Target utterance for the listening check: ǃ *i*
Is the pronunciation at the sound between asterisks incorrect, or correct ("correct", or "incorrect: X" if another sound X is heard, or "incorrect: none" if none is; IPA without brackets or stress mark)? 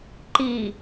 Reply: correct